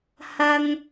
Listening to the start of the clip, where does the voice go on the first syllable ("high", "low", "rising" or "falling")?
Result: high